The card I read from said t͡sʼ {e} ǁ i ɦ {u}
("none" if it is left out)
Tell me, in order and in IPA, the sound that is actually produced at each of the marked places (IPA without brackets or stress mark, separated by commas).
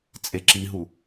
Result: e, u